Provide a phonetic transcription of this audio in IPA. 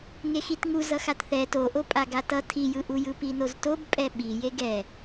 ŋ e x i t ŋ u z ʌ x a t θ ɛ t o ʔ o pʼ a ɡ a t ʌ tʰ i j ɯ ʔ u j ɯ p i n o z t o b pʼ ɛ ɓ i j e ɡ ɛ

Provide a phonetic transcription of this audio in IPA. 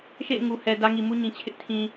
ʃ ḛ˦˨ ɪ̯ ŋ u˨ h ɛ˨ d ä˦ ŋ i˨ m u˦ ɲ ĩ˨ t͡ɕʰ ɪ˦ ʔ tʰ ĩ˨

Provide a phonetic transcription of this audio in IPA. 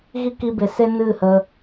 ɣ i˦ k i˧ b e˨ s e˦ n ɨ˦˨ h ə˧

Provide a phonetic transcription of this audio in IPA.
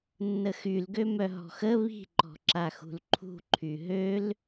nː ə x y l ɡ ø m œ ɦ ɔ̤ x ə β i̤ ǃ ɔ̤ ǁ a x ṳ l ǃʰ ṳ ǃʰ y ɦ ø l

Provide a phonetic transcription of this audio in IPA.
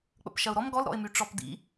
k͡p ə̰ p ʃ ɐ ʊ̯ ɾ ɔ m ɡ ɔ l ɾ ɔ̰ ɪ̯ m y ʈ͡ʂ ɔ p d ḭ

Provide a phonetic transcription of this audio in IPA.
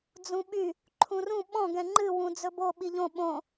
d͡z ũ ɓ y | ǃʰ ũ r ũ ɓ ɔ̃ ɡ ɛ̃ ŋ͡ǃ ɨ w ũ d͡z ɵ b o ɓ i ʎ õ ɓ õ

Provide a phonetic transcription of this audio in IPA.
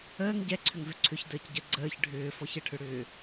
əː ŋ ɟ ɛ ǀʰ ʏ ŋ v ʏ ǀʰ ʏ ç d əː c ɟ ə ɡ͡ǀ əː ç ɖʱ ʏː f ɔ ç ə ʈʰ ʏ ɽ ʏː

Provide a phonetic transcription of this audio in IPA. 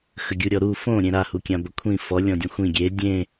x ə ɡʲ u ɾʲ ɔ ɾ u f õ ɾʲ ẽ ɾ a h u kʲ ã b ə kʷʰ ĩ f ɔ lʲ ɔ̃ dʲ õ xʷ ĩ ɡʲ e dʲ ẽ

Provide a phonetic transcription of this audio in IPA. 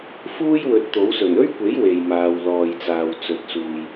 f uː˥ j w ɵ˨˥ t̚ t̪ o˨˥ w s ɵ˨˩ n ɵ˥ ɥ kʷ e˨˥ j w e˨ j m aː˨ w l ɔː˨ j t͡s aː˨ w t͡s ɵ˨ t̚ s uː˨ j

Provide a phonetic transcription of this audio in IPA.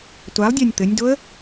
tʷ a lˠ dʲ a nʲ t̪ ɘ nʲ d o ə̯

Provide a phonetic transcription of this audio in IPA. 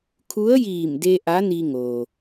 kʰ u˧˥ ə̯ j iː˧˩ m d e˧ ʔ a˧˥ n i˧ ŋ oː˩

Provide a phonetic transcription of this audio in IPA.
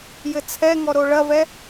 j ɘ t͡sʰ ɛ ŋ ɔ ɾ o ɭ ɐ v ɛ

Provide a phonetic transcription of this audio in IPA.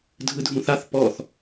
dʱ ɯ dʱ ũ θ a θ p ɔ θ

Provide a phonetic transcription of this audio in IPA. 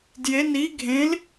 d j e n i ɡʱ ẽ l

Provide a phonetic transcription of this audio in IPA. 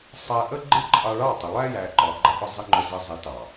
sˤ æ˧ ʔ ə˦ ɡ͡ǃ ɪ˦ ǃʼ ɑ˧ ɭ ɑ˦˨ tˤ ɪ˨ lˠ æ˦ j æ˨ ǃ ɒ˨ ɡ͡ǃ ʌ˧ ʔ ʊ˦˨ zˤ ɪ˦ ŋ͡ǃ ʊ˧ z ə˧ zˤ i˨˦ t ɑ˨

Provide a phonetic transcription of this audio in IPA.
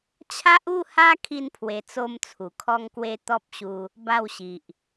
t͡ɕʰ a˦ ʔ u˥˧ h a˦ kʰ i˦ n pʰ w e˧ t͡s o˦ m t͡sʰ u˨˩ kʰ ɔ˦ ŋ k w e˦ t̪ ɔ˦ p̚ ɕ u˧ | b a˥˧ w ɕ i˨ ʔ

